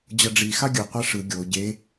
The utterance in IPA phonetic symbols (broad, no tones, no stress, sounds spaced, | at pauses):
d͡ʑ ʌ ɖ͡ʐ i x a ɡʲ ɯ qʷ ɛ ʂ ɯ ɡʲ o ɟ e